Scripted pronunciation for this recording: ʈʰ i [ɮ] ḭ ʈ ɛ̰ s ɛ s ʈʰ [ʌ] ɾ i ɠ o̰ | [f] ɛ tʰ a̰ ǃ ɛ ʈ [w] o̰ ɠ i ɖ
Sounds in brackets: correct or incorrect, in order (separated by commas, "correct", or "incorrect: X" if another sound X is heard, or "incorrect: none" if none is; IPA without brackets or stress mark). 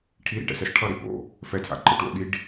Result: incorrect: ɾ, correct, correct, correct